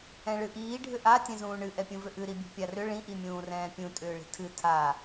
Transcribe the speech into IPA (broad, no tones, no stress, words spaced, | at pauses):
ɛ̃ɭɨʔiː ɖʱʏʔa tʲɛ̃zũːɳɨ ʔɛpʲũvʏʔɨ ɾibʲṳpʲarʏ ɭĩ ʔimʲũːrɛ̃ːpʲũ tʼʏːɭi̤tʰɨ tʰa